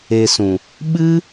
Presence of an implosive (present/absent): present